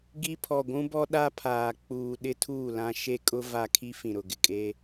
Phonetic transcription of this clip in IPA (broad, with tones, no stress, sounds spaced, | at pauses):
ɡ i˦ pʰ ɔ˨ ɡʷ ũ˦ b ɔ˦ ɗ a˦ pʰ aː˨ k͡p uː˨ ɗ ɪ˦ tʰ uː˦˨ l ã˦ ʃ e˦ kʼ ʊ˦ v a˦ kʰ i˦ f ĩ˨ ɾ ʊ˨ ɡ ɪ˨ kʼ e˦